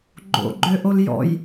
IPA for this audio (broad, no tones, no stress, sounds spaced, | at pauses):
ɡ͡ǃ o̰ ɡ͡ǃ ø ʔ o l j ɔ̰ j